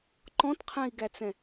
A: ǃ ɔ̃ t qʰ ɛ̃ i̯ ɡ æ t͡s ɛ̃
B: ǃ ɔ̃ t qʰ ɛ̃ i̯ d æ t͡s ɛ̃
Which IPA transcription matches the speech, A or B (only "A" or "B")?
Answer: A